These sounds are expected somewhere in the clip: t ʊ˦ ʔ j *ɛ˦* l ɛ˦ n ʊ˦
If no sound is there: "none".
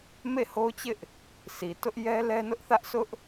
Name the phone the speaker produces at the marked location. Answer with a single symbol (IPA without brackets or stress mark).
ɛ˦